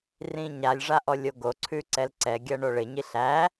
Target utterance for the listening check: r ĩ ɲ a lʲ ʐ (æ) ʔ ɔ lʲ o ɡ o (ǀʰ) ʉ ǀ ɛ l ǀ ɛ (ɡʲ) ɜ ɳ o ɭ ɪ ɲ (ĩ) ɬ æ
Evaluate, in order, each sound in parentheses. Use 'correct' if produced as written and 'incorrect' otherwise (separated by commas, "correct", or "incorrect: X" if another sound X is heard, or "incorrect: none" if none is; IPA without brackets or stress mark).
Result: incorrect: a, correct, correct, incorrect: i